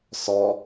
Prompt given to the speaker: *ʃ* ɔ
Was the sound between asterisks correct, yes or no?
no